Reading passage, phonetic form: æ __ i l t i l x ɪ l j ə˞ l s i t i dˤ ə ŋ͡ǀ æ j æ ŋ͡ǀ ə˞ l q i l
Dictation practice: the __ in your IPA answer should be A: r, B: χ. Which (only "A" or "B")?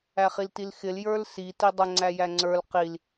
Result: B